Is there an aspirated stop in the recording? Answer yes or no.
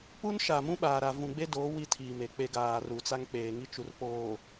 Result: yes